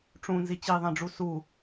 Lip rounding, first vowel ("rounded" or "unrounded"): rounded